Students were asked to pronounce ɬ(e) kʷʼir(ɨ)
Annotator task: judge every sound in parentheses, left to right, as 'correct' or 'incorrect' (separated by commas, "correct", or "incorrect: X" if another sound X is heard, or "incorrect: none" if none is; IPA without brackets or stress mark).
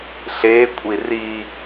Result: correct, incorrect: i